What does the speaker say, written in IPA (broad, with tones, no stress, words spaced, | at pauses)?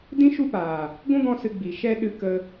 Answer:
dĩ˦ ʃu˦paː˨ | ɡʷũ˦ɡɔ̃˧ sɨ˧ ɡ͡bi˨ ʃɛ˦ɗɨ˧ kə˧